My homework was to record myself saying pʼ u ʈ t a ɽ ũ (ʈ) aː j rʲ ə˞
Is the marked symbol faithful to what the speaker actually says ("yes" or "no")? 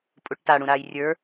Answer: no